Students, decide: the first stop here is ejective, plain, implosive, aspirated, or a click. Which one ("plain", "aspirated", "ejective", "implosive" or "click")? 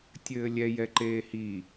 plain